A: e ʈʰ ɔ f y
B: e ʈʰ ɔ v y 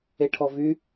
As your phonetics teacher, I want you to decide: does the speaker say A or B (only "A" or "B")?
B